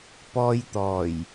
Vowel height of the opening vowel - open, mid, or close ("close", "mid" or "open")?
mid